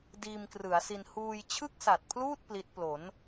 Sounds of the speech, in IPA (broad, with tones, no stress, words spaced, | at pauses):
diː˧mkrɯ˩˦a̯si˧n huː˧jt͡ɕʰɯ˥˩k̚sa˨˩t̚pʰluː˥˩t̚ pli˦˥t̚ plo˩˦n